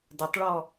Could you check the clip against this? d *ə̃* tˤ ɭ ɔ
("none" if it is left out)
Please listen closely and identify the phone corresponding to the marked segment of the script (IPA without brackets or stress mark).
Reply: ə